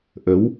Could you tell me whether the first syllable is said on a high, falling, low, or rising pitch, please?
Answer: rising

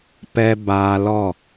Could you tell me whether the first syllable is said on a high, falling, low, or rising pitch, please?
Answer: high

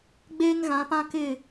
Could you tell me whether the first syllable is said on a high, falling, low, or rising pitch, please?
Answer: high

